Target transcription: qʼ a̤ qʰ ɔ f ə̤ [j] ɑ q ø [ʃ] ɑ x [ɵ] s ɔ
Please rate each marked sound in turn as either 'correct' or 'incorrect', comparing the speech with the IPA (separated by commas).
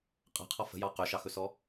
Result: correct, correct, correct